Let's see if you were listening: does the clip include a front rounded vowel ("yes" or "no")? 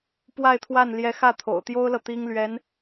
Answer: no